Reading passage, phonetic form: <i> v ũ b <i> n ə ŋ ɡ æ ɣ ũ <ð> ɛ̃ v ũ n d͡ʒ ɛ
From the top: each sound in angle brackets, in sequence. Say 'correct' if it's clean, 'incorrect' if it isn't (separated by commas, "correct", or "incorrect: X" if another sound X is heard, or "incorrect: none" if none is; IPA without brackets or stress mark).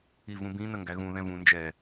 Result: correct, incorrect: ĩ, correct